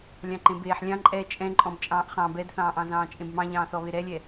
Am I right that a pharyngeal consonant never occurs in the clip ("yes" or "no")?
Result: no